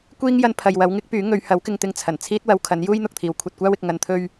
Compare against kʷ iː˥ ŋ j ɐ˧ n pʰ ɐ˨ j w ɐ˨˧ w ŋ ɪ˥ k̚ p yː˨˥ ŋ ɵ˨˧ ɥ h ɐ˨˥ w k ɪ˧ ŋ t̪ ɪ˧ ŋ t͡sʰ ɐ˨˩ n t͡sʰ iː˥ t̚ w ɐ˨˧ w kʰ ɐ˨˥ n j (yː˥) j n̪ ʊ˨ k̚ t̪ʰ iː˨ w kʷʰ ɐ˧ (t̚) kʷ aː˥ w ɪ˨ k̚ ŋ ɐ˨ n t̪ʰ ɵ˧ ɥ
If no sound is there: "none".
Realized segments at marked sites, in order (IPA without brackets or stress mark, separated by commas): uː˥, t̚